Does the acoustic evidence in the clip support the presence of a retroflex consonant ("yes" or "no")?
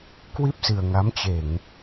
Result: no